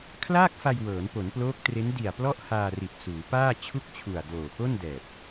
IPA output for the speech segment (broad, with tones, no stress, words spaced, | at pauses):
kʰlaː˥˩k̚fa˧j wɤː˩˦npo˩˦nploː˦˥k̚tre˦˥n di˨˩a̯ plɔ˥˩ʔhaː˧ri˨˩t̚ suː˩˦paː˥˩ t͡ɕʰu˥˩k̚t͡ɕʰu˨˩a̯ doː˨˩ko˥˩ndɛː˨˩p̚